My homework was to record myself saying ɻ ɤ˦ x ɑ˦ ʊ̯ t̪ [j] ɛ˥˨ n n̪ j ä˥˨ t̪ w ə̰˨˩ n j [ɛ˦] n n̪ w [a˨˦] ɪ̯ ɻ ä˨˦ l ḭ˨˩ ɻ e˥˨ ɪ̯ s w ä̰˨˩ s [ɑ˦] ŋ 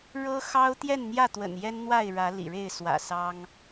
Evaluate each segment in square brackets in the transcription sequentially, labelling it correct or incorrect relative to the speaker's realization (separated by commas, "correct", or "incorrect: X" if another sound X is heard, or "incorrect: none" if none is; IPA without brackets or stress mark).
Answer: correct, correct, incorrect: a˥˨, correct